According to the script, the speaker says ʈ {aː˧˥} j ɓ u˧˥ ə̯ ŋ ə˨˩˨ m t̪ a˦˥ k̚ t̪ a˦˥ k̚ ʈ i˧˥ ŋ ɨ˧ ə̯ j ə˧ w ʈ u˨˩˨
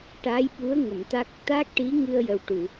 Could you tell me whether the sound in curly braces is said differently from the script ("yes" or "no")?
no